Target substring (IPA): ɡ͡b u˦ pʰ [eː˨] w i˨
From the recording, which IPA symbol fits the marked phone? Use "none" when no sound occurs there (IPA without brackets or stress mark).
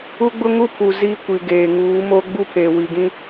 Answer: eː˨